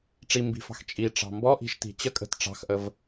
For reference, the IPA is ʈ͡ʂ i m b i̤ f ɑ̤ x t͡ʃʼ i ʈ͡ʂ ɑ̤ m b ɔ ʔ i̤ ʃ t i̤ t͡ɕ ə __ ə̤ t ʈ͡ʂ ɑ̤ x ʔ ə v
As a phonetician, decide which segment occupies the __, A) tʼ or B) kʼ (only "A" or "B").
B